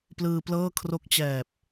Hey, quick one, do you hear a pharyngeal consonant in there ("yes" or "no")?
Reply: no